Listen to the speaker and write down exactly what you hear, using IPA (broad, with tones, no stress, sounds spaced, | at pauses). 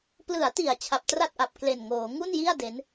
p l ɯ˩˦ a̯ t i˩˦ a̯ t͡ɕʰ a˨˩ p̚ t r a˥˩ t̚ ʔ a˨˩ p̚ k l e˨˩ n ŋ oː˩˦ ŋ u˥˩ n j i˥˩ a̯ d e˦˥ n